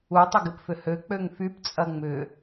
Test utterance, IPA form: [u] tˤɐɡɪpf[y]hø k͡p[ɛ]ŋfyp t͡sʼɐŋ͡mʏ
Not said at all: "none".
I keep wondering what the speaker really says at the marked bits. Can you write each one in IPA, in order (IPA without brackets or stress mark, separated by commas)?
u, ʏ, ø